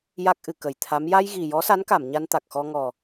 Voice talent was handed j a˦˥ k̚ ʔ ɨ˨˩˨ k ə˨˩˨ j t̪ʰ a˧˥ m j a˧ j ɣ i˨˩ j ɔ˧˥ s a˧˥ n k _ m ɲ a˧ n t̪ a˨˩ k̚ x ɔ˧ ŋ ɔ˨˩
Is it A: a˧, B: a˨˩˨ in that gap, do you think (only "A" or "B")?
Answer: B